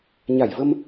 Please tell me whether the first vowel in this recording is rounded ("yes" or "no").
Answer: no